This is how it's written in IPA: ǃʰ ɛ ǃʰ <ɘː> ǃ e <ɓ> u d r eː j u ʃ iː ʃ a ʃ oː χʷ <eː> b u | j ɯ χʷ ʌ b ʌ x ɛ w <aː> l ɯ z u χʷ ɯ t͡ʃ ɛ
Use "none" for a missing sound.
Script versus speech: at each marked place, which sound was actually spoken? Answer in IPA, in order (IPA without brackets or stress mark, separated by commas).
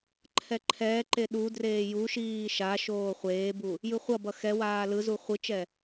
ɛː, ɗ, eː, aː